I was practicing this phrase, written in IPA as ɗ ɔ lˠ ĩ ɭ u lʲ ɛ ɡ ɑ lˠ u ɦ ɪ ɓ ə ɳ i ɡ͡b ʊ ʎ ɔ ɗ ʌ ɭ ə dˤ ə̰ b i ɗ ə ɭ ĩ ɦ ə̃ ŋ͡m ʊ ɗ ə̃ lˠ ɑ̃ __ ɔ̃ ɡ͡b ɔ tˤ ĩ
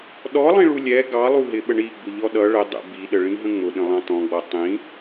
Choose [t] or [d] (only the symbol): t